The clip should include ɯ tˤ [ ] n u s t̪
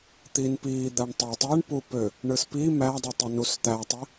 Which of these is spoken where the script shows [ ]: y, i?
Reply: i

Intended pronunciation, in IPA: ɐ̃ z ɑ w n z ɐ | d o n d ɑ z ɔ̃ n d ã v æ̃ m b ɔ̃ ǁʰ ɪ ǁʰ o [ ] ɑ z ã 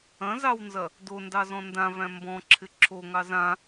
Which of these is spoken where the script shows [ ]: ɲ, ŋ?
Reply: ŋ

